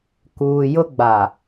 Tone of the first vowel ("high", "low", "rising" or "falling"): low